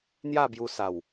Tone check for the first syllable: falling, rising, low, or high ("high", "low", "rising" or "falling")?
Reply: falling